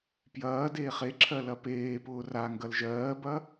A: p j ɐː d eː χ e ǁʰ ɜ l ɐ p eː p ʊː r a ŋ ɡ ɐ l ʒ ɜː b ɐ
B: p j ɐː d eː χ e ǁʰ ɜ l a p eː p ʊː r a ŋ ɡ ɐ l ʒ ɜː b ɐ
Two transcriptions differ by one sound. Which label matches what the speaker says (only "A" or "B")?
A